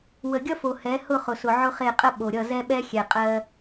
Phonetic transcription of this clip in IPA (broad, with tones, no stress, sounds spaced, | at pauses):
w ə˨ ɡʲ ʌ˦ f o˨ h ɛ˨˦ h ʊ˦˨ χ ʊ˨ s ʊ˨ ʕ ʊ˦ χ e˦˨ qʼ ə˦ ɓ o˨ ɾʲ ʌ˦˨ z ɛ˦ ɓ ɛ˦ xʲ ɛ˨ qʼ ɜ˦